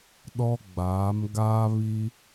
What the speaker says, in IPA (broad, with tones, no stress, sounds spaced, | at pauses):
ɗ ɔ˦ ɡ͡b aː˨˦ m ɡ aː˦ β i˦